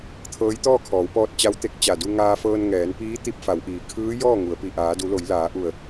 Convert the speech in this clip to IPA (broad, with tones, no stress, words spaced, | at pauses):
t̪ʰɤː˧˥jt̪ɔː˥˨kʰɔː˩˧wpɔː˧t̚ t͡ɕa˧˥wt̪e˧k̚ t͡ɕa˧˩du˧ŋaː˧fɤː˧n ŋɛː˩˧npiː˧˥ t̪i˧p̚fa˩˧wʔiː˩ kʰɯː˧˥ jɔː˥˨ŋu˩˧ə̯pi˧˩ ʔaː˩˧du˩˧lo˩˧j laː˩˧ʔu˧˩ə̯